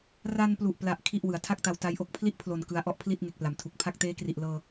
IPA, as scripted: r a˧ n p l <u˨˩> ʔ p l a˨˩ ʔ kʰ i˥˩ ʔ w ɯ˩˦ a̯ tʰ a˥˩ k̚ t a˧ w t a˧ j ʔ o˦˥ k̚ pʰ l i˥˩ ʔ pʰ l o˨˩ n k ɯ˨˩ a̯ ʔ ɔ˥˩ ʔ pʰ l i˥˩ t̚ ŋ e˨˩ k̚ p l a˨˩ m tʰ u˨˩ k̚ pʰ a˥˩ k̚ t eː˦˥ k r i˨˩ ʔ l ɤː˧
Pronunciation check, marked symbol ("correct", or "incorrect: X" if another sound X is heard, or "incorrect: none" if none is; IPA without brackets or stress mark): correct